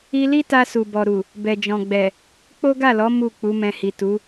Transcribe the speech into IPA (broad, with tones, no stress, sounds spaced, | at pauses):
i˧ l i˦ t a˧ s u˨ b ɔ˨ ɾ u˨ | b ɛ˨ d͡ʒ ɔ̃˨ ɡ͡b ɛ˨ | k͡p o˦ ɡ a˦˨ l ɔ˨˦ m u˦˨ k͡p u˨˦ m ɛ̃˧ h i˨ t u˨˦